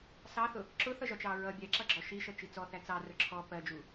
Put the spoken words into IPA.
sɑθʊ | ǁʊθʌʒɒt͡ʃɑ ɹʌ bʲɛǁʌɡ͡ǁɔ ʃiʃʌt͡ʃi t͡sɔθæ t͡sɑrʊ ǁʰɔ pɜd͡ʒu

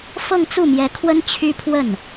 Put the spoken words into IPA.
fɤ˥˧ŋt͡su˥˩mjɛ˧˥kʰwə˥n t͡ɕʰy˥pʰwə˥˩n

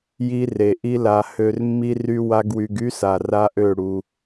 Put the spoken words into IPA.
ji˦re˨ ʔi˦la˧ hø˧r mːi˦ry˦wa˦ɡwy˧ɡ y˦sa˨ ra˦ʔø˦˨ ɽu˧

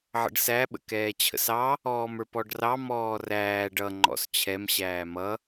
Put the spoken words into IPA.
ʕə̰ɖsæɓə̰ kɛːt͡ɕʰə̰sɑ | ɔːmə˞pɔɖrɑ mɔːræːɖ ʌ ŋ͡ǃɔ̰st͡ɕʰɛmɕæː mʌ

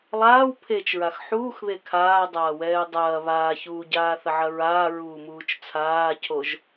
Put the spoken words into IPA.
lˠaːw pʰet͡ʃɹax ħuːxβe kʰaːdˤaː wɛːdˤɐː βaːçuːɟaː θɐʕɐɹaːɹuː muːt͡ʃt͡sʰaːcʰoʒ

